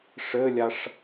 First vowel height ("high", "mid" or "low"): mid